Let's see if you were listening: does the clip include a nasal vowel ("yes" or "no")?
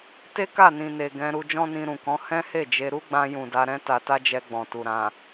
yes